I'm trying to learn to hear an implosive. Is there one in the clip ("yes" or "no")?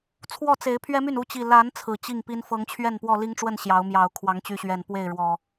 no